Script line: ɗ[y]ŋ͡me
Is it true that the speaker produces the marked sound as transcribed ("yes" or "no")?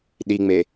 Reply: no